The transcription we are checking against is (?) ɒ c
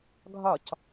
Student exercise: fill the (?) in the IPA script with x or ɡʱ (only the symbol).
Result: ɡʱ